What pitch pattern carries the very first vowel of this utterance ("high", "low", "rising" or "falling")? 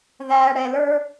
high